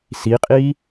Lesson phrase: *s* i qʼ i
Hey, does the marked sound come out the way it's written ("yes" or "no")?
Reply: yes